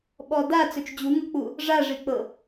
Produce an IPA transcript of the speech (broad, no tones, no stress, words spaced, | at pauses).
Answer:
ɓɔda t͡sɵt͡ʃd͡ʑuŋɤk͡pu | ʐaʐik͡pɤ